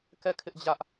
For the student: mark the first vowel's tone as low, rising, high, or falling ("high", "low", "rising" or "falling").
falling